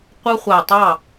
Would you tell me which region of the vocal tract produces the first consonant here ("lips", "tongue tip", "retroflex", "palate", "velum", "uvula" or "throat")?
uvula